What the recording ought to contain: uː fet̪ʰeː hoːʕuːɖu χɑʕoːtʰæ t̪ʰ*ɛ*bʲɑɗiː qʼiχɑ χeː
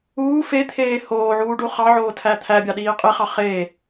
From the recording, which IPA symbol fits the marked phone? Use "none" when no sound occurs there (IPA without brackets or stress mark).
æ